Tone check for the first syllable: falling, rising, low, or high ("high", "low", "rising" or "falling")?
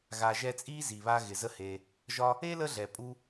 low